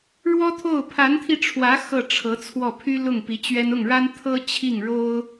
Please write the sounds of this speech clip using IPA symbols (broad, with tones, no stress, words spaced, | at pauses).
ɻwɔ˥t̪ʰo˥˩ʊ̯ pʰa˧˥nt̪ʰi˧ʈ͡ʂʰwä˧˥ xɤ˥˩ʈ͡ʂʰɤ˧˥t͡sʰwɔ˥˩ pʰy˥ lʊ˥˩ŋpi˧˥t͡ɕɥɛ˥n ʊ˥˩ŋɻa˥n t̪ʰɤ˥ t͡ɕʰi˥˩ŋɻo˥ʊ̯